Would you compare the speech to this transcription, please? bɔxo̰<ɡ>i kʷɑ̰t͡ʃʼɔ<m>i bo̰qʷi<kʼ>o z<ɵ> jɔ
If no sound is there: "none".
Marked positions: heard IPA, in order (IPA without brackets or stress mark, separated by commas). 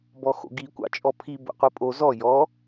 ɡ, pʰ, pʼ, ɔ